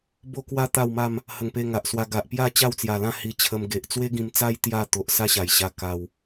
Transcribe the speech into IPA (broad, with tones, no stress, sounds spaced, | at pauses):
b o˦ k w a˦ t̪ a˥˧ w m a˥˧ m | h ə˨˩ ŋ p e˧ ŋ a˨ ʔ s w a˧ ɡ a˨ ʔ p j a˥˧ t͡ɕ a˥˧ w t͡s j a˨˩ l ã˥˧ h i˧ t͡ɕʰ ə˧ m ɡ e˨ ʔ t͡s w e˦ ɡ ĩ˧ m t͡s a˦ j t̪ j a˥˧ t̪ o˨ ʔ s a˦ ɕ a˨˩ j ɕ a˧ k a˧ w